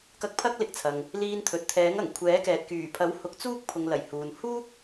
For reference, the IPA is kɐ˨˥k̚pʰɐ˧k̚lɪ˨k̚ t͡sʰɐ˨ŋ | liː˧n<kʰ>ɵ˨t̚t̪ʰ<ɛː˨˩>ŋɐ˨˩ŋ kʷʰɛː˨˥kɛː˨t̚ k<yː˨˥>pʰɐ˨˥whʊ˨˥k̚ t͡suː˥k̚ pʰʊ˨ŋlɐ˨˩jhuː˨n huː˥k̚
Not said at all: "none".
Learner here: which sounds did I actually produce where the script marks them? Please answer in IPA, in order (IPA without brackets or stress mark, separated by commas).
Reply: t̪ʰ, ɛː˨˥, yː˨˩